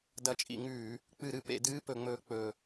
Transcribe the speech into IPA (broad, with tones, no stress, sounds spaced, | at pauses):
d ɐ˧˩˧ t͡ʃʼ ḭ˧˩˧ ŋ ʉː˧˩˧ | k͡p ɨ˧˩˧ ɾ ɨ˧˩˧ p ḛ˧˩˧ d ɨː˧˥˧ p ɵ˧˩˧ ŋ͡m ɵː˨˦ k͡p ɵ˨˩